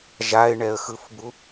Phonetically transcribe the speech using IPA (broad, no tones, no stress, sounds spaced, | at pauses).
ʒ a ɪ̯ ɳ ɛ ə̯ x ɯ f b u